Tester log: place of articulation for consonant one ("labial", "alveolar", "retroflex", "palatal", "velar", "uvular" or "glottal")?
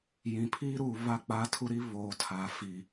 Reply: palatal